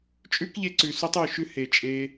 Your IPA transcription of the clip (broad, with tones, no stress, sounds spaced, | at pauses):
t͡ʃʼ ʉ˦ k ʎ e˧ ǀ ʉ˨ s u˧ tˤ ʉ˨ ʃ ʉ˦ h e˨ t͡ʃʼ e˧